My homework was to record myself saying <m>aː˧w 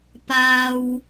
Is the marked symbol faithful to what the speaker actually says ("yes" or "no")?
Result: no